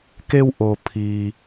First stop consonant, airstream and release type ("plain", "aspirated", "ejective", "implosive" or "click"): plain